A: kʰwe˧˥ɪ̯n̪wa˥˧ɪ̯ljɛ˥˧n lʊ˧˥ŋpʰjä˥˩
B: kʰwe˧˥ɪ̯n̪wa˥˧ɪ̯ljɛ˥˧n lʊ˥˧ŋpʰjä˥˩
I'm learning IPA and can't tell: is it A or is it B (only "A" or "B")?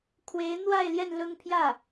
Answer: B